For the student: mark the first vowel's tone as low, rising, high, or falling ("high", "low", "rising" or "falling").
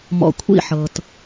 low